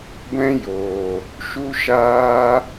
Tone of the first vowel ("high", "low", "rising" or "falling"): high